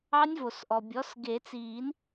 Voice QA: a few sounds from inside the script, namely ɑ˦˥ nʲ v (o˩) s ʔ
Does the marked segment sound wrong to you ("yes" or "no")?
no